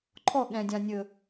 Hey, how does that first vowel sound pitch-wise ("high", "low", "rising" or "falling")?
falling